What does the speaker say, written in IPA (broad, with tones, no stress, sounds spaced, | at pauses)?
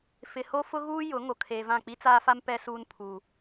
f ɪ˨ h o˦ f ʊ˦ ɣ uː˦ j ʊ˨˦ ŋ o˨ kʰ eː˨ v ã˦˨ k͡p i˦ t͡s aː˦ f a˦ m p ɛ˨ s uː˨ n pʰ u˨